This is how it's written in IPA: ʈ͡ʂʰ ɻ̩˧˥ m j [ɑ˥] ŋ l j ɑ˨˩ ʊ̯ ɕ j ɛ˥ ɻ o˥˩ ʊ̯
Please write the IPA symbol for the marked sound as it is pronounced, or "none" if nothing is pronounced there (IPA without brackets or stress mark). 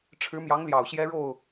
ɑ˧˥